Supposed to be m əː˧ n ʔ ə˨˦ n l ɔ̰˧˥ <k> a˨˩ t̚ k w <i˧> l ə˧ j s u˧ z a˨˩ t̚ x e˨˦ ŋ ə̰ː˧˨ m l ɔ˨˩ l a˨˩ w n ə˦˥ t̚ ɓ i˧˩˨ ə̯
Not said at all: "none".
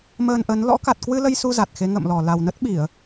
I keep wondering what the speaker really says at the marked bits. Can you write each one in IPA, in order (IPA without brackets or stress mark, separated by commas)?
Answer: k, ɨ˧